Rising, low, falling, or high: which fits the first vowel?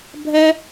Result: high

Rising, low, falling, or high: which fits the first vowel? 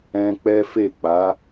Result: high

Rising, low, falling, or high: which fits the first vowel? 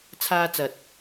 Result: high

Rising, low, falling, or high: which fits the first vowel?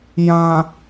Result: low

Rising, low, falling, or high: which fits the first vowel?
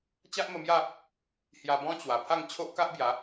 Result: high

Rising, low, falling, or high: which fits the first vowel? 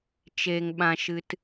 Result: low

